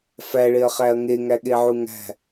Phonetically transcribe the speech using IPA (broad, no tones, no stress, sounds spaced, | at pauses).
f æ ɭ e ɐ̯ χ æ ɐ̯ ŋ e ŋ æ ɠ e ʕ u ŋ æ̤